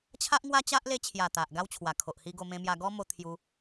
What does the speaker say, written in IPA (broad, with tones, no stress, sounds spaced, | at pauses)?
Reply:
t͡ɕʰ a˦ ʔ ŋ w a˦ t͡ɕ a˦ ʔ l e˧ t͡ɕʰ j a˨˩ t̪ a˨ ʔ ɡ a˦ w t͡ɕʰ w a˨˩ kʰ o˨ ʔ h i˧ ɡ o˧ m ẽ˧ m j a˧ ɡ ɔ˦ m o˧ t̪ʰ j u˧